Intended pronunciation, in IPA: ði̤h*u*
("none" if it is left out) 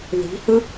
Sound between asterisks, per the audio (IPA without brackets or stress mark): ɯ